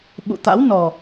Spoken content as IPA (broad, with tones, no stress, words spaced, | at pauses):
ɓṵ˧˨t̪a̰˧˥wnɔ˨˩